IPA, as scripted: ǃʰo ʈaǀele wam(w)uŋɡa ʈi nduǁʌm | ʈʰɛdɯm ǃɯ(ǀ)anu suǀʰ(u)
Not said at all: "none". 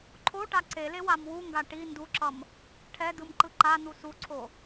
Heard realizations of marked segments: w, ǃ, o

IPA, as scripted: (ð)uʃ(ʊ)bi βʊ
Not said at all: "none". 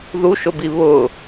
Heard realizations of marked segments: ð, ʊ

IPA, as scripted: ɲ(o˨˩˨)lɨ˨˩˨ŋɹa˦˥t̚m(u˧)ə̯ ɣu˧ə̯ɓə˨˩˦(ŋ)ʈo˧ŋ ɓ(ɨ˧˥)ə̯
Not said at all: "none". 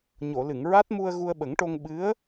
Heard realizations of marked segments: o˨˩˨, u˧, ŋ, ɨ˧˥

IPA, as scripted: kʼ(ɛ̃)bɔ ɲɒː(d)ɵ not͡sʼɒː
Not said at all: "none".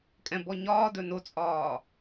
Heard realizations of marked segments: ɛ̃, d

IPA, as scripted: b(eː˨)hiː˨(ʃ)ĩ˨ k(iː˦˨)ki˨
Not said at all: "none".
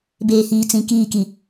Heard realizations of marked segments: eː˨, t͡s, iː˦˨

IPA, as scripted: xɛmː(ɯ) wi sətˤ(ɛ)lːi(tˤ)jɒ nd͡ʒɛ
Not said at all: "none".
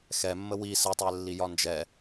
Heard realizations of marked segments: ə, ɛ, none

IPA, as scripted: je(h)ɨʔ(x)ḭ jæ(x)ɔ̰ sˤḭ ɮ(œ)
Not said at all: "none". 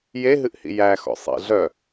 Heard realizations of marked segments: ɦ, h, x, œ

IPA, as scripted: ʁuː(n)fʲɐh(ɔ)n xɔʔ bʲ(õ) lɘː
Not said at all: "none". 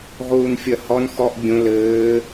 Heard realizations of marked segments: n, ɔ, õ

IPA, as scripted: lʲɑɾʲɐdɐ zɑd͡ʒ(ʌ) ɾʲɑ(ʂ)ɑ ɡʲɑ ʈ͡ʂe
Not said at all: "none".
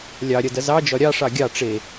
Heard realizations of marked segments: ɒ, ʂ

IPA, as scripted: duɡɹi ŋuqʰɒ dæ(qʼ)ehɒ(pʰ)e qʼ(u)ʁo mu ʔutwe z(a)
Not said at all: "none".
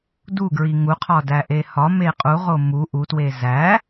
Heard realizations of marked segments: ʔ, m, u, æ

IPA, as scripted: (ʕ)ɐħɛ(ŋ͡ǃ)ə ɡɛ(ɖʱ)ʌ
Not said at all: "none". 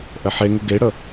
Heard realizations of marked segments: ʔ, ŋ, ɽ

